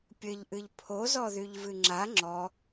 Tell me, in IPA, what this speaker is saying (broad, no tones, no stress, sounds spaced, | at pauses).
pʲ ɘ ʎ ʔ ɨ ʎ pʰ o z ɔ ð y ʎ v ɨ ŋ͡ǁ a ŋ͡ǁ ɔ